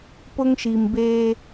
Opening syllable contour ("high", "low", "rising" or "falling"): high